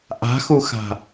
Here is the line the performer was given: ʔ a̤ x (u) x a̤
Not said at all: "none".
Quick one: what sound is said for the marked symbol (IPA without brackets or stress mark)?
u